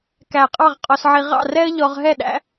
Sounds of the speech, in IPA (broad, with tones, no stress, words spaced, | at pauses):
kæ˧˩qʼɑ˥˧ʁqʼɔ˧sʕi˧ ʁɑ̰˥˧rɛ˥ə̯ʎɔ˧ʁ ɦɛ˥˧ɗæ̰˥